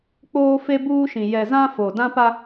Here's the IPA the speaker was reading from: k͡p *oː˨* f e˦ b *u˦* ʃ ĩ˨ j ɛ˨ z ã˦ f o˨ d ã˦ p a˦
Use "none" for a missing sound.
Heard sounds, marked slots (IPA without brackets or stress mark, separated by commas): oː˦, uː˦